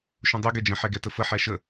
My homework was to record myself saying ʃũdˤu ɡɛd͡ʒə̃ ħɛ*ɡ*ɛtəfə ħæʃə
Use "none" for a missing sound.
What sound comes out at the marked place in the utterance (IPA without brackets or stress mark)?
ɡ